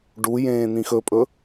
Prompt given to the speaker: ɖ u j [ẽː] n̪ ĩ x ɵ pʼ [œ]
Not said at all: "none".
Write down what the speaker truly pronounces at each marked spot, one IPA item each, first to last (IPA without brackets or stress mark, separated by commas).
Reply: ẽː, ɵ